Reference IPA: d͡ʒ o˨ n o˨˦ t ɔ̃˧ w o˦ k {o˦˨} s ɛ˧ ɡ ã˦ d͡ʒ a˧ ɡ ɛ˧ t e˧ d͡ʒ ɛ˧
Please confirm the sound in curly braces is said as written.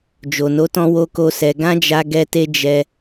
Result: no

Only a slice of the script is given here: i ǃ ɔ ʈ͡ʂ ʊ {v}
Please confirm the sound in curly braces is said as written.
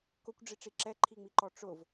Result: yes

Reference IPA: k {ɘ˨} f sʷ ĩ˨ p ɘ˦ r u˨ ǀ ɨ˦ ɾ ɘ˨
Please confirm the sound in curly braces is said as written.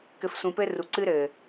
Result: yes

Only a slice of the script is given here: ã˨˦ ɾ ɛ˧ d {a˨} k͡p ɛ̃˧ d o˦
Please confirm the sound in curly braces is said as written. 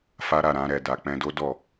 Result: yes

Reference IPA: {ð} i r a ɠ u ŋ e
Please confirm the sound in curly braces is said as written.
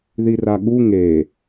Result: yes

